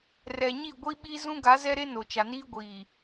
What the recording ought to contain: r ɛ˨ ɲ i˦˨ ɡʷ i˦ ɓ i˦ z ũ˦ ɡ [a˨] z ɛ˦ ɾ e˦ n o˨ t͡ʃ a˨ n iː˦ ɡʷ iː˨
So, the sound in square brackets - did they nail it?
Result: no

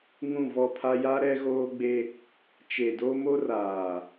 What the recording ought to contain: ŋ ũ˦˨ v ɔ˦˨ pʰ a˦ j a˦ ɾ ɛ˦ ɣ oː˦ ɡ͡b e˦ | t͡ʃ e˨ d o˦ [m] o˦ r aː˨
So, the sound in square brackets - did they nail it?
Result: yes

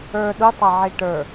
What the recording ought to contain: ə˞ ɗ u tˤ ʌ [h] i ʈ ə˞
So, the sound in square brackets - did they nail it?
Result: no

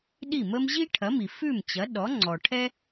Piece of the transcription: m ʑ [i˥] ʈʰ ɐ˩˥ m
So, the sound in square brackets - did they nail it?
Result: yes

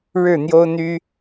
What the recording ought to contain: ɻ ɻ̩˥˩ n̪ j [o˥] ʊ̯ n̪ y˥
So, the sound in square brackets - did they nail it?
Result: yes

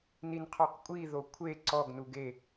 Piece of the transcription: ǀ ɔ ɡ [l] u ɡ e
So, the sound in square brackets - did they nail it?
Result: no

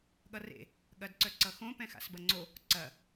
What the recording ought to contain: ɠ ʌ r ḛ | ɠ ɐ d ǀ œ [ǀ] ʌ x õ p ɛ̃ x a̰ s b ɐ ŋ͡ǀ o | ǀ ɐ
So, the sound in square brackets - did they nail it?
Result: yes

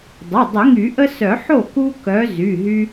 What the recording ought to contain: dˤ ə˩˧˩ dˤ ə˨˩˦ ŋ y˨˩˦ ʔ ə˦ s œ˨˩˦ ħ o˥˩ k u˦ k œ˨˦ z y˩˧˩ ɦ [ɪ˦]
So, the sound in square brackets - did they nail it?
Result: no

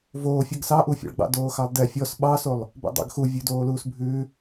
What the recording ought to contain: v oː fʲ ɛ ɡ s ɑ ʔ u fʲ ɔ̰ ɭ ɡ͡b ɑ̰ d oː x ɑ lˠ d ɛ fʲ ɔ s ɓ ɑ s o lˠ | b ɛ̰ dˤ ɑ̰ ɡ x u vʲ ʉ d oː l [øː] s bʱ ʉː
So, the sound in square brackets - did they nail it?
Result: no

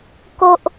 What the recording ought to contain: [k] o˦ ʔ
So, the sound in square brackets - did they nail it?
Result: yes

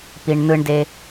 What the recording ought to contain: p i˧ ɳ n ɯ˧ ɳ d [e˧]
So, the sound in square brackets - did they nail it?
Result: yes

